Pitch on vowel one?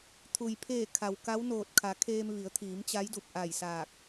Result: low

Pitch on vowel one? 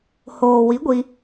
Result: low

